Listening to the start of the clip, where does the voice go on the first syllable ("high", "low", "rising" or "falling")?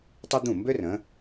high